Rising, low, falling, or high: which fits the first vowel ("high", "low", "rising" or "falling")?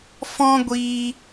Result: high